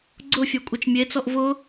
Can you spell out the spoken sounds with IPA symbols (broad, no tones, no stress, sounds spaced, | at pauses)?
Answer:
ɡ͡ǀ ʊ fʲ ɔ kʷʼ ɛ t͡ʃ mʲ e t͡s ɔ ʔ v ʊ